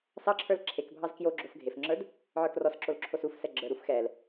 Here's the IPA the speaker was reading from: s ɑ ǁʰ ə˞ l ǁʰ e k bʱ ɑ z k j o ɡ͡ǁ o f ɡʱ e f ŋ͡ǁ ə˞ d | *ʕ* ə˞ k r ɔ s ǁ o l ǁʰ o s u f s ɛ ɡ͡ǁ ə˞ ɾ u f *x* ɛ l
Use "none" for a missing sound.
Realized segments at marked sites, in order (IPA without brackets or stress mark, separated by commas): ʕ, x